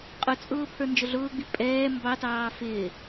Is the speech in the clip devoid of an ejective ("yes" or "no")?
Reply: no